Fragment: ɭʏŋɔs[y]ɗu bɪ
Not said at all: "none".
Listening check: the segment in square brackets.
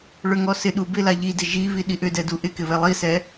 ɪ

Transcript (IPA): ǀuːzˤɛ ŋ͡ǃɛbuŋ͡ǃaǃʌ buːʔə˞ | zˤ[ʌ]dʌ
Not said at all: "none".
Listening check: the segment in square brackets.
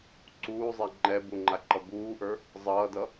ʌː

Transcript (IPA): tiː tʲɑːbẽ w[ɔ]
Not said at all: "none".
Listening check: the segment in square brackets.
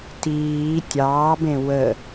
ə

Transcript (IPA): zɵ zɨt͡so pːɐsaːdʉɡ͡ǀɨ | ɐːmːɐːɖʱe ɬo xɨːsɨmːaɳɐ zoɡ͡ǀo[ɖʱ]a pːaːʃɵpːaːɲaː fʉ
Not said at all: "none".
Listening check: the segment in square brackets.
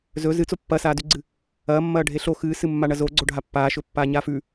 ɖʱ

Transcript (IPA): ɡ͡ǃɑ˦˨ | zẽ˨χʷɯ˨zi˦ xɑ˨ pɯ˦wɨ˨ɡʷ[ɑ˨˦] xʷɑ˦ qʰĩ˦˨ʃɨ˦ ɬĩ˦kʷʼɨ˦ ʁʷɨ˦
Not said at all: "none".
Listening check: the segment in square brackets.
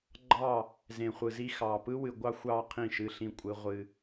ɑ˦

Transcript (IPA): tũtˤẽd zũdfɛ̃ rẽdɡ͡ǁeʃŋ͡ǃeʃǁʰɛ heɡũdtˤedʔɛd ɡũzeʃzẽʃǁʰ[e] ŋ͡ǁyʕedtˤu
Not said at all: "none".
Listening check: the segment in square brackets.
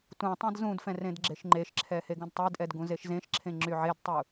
ẽ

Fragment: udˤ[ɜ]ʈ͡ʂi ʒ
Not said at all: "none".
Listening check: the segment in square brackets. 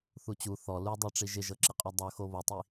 ɜ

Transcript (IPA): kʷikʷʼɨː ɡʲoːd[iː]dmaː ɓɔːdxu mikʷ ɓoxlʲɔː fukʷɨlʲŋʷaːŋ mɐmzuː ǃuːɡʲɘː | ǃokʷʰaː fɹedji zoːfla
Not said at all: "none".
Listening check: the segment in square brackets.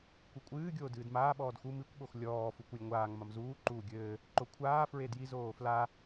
ɨː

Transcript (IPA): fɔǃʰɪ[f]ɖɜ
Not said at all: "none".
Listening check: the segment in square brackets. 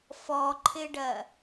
none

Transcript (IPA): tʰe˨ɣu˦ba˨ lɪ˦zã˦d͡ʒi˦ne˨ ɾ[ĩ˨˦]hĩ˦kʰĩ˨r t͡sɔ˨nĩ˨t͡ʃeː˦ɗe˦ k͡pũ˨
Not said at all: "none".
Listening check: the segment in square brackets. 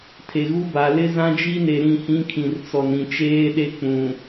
ĩ˦˨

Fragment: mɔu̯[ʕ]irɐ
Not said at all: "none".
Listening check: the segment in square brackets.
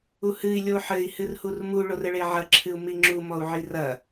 ʕ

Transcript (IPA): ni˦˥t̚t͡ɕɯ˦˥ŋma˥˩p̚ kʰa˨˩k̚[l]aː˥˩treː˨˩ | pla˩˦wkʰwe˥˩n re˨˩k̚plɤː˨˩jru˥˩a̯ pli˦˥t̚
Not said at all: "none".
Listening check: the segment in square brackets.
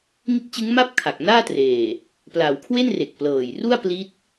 n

